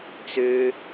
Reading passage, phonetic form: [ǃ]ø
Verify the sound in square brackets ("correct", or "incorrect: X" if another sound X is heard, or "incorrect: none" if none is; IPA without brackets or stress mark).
incorrect: t͡s